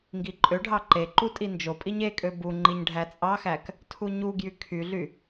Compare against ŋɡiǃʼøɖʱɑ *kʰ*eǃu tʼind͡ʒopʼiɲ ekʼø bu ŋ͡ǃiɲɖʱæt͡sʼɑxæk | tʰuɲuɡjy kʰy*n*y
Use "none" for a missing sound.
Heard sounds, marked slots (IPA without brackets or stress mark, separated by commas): ǃ, ɮ